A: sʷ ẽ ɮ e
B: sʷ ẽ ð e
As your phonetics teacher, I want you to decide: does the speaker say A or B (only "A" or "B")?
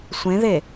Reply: B